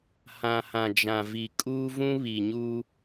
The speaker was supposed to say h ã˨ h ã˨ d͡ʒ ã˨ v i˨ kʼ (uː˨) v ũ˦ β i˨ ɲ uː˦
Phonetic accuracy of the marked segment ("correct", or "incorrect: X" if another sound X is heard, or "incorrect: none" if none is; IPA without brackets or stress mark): incorrect: uː˦